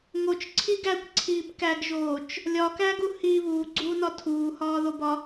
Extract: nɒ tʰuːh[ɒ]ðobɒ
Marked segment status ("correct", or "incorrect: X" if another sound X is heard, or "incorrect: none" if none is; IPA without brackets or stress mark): incorrect: ɒː